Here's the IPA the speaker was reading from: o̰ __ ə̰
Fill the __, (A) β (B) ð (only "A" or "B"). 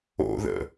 B